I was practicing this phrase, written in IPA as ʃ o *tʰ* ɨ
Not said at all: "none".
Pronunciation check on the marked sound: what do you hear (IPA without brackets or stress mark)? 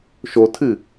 tʰ